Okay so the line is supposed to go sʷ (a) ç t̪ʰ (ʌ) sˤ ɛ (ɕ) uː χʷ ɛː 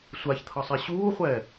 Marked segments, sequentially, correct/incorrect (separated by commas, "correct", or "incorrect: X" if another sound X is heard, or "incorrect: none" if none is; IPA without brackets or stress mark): correct, correct, correct